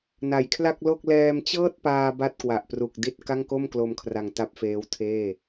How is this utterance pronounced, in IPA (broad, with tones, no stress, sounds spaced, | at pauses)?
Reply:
n a˨˩ j kʰ l a˥˩ k̚ l o˥˩ k̚ l ɛː˧ m t͡ɕ ɤː˥˩ t̚ p aː˧ b a˥˩ t̚ k w a˨˩ ʔ p r u˨˩ k̚ d i˦˥ t̚ k a˥˩ ŋ k o˥˩ m k l o˧ m kʰ r a˧ ŋ t a˦˥ p̚ f eː˦˥ w tʰ eː˥˩